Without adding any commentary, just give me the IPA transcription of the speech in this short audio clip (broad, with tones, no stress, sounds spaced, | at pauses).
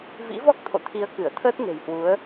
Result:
v ḭ˧˥ v ɔ˦˥ k̚ t̪ʰ o̰˧˨ t̪ʰ i˨˦ ə̯ k ɨ˧˩ ə̯ t̪ʰ əː˦˥ t̚ n e̤˨˩ j h w u˨˦ ə̯